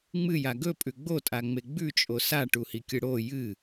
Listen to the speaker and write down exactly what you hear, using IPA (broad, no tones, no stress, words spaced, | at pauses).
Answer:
ŋ͡mɨja ɡɵpʼʉ ɡ͡botʼaŋ͡me ɡ͡bʉt͡ʃʼo saʈuhikʲɨ ɽo jɨ